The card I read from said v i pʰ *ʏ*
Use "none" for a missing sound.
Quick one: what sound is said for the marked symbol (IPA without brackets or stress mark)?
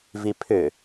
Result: ʏ